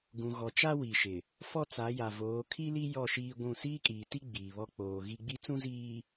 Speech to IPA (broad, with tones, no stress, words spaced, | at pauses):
ɡũ˨ɣɔ˨t͡ʃa˦ wi˨ʃɪ˨ | fɔ˦t͡sa˨˦ja˨voː˨˦ kʰi˦li˦ jɔ˦˨ʃiː˦ɡʷũ˦˨ siː˦kʼiː˨ti˦ ɡ͡biː˨βɔ˦ k͡poː˨ɣi˦ ɡ͡bi˦ t͡sũ˦ziː˨